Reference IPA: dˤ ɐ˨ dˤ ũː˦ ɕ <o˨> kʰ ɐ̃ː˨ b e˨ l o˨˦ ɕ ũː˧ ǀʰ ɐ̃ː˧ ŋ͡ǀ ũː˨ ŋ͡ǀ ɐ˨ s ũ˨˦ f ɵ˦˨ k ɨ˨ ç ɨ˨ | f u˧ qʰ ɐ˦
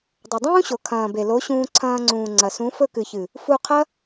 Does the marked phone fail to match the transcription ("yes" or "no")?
no